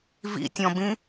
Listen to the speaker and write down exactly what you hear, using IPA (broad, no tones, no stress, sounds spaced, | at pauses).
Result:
v ḭ tʲ ɔ̃ b ĩ